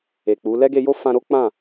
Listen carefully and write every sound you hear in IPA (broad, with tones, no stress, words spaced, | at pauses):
e˨k͡pu˨˦ lɛ˦ɡe˧jo˦ fã˧ɾo˦ k͡pã˦˨